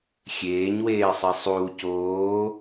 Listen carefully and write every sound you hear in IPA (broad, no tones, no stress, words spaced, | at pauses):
xʲeːɲweːsˤi sˤuː coː